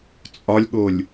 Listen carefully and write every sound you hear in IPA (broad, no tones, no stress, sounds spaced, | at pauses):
t͡sʼ ɒ lʲ ɠ o lʲ